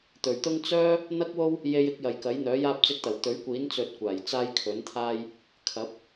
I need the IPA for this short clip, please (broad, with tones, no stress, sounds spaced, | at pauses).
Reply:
t̪ ɵ˨˩ ɥ t̪ ʊ˥ ŋ t͡s œː˥ | n̪ ɐ˥ k̚ w o˥ w | j e˧ j ɪ˧ k̚ j ɐ˨ j k ɐ˨˥ j n̪ œː˨˥ j aː˥ p̚ t͡s ɪ˧ k̚ t̪ ɐ˨˩ w t̪ ɵ˨˥ ɥ kʷ iː˨˥ n t͡s ɵ˧ t̚ kʷ aː˨˩ j t͡s aː˥ j kʰ ɵ˨˥ n t̪ʰ aː˥ j | kʰ ɐ˨˥ p̚